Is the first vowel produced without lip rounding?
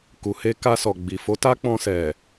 no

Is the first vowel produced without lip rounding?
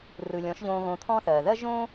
yes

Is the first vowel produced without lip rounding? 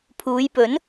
no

